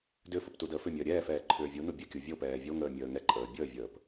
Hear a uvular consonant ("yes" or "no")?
no